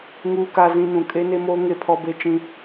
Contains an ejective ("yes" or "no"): yes